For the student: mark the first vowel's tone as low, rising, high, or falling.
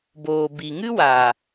low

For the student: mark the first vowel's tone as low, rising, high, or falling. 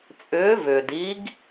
rising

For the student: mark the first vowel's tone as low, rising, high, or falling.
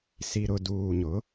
low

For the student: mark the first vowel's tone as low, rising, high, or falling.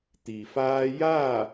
low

